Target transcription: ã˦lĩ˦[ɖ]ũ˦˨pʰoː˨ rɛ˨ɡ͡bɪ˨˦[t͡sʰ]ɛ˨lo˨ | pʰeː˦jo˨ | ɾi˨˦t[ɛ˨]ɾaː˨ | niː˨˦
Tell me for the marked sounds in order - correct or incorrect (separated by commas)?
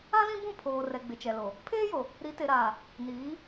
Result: incorrect, incorrect, incorrect